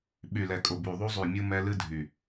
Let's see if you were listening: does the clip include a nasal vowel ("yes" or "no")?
no